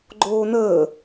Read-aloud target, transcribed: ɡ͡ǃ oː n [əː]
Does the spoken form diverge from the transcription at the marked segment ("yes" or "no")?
no